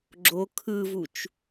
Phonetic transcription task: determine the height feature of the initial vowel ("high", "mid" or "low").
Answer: mid